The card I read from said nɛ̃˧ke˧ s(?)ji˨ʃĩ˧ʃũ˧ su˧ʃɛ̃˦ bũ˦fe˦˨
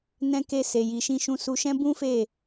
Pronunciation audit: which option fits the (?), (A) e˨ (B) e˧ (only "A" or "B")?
A